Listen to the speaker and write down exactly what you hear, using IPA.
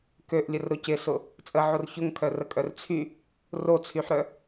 k ø ʔ lʲ ə r ɾ ʊ c ɪ s ʊ | t͡sʼ ə ʕ o r ç ʊ ŋ kʰ œ r ə kʼ œ r t͡sʰ y | r o t͡sʰ y ħ ɾ œ

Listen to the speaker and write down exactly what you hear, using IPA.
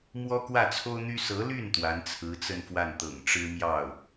m w ɔ˥ k w ä˥˩ t͡sʰ o˥ ʊ̯ n̪ y˥ s ɤ˧˥ l y˥˩ n t̪ w a˧˥ n t͡sʰ ɹ̩˧˥ t͡s ə˥˧ n f w a˥˩ n t̪ ɤ̰˨˩ ŋ ʈ͡ʂ ɻ̩˥ m j ɑ˥˩ ʊ̯

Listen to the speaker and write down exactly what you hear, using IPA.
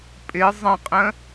pʼ ɪ zˤ ə̃ qʼ ə̃

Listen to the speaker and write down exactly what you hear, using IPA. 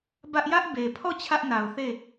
b ä˦ ʔ j ä˦ ʔ b e˨ pʰ ɔ˦˨ t͡ɕʰ ä˦ ʔ n a˨ ʊ̯ θ e˦˨

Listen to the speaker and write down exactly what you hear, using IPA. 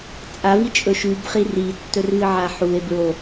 t͡sʼ a v i t͡ʃʼ ɵ ʃ ʉ b χ i r i tː ɵ r v ɨ ʕ a ħ u e̯ b ɹ o

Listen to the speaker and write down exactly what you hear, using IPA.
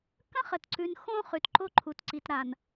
k ə̃˦ χ ə˨ t ǀ ʉ˨ n x õ˦ χ ʉ˨ t ǃ o˦ ǃʰ u˨ t ǀ i˨ t ɾ a˨ n

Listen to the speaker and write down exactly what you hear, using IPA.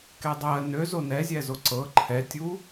k ɛ dˤ ɜ n ø z o n ɛ zʲ ɛ z o ǀ ɤ ǃʰ ɛ tʲ u

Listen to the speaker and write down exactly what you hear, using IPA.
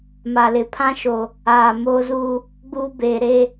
m a˨ l ɪ˨ pʰ ã˦ ʃ o˨ | aː˨ m oː˦ z uː˦ | ɡ͡b uː˦ b eː˨ ɾ e˦˨

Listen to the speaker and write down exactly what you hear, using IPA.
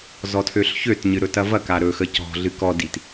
z ɔ tʰ ø ɬ ç ø t ɲ ɨ ɾ ɵ t ɐ v ɐ k a ɾ ɵ x ə c ɔ̤ ɮ ɨ k ɔ d i t

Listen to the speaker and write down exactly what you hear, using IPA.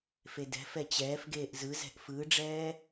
f e d ɛ̤ f ɛ t͡ɕ ɛː f ɡ eː ʔ z ɯ z ɛ̤ ʔ f ɯː ɖ͡ʐ ɛː

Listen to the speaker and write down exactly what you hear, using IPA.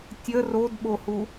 tʲ ə r o d ɓ o h u

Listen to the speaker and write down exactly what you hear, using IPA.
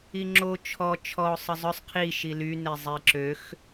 i ŋ͡ǁ o t͡ʃʰ ɔ t͡ʃʰ ɔ ʊ̯ sˤ ə zˤ œ sˤ qʰ i ʃ i l y n e zˤ e ǁ ø x

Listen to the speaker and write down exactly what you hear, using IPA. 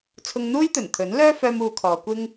t͡sʰ ʊ˧ ŋ n̪ uː˥ j t̪ ɵ˨˩ n t̪ʰ ɵ˨˥ n l œː˥ f œː˧ m uː˧ kʰ ɔː˨˧ kʷ ɪ˥ ŋ

